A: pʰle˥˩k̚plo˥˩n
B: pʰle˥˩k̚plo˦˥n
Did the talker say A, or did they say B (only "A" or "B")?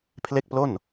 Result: A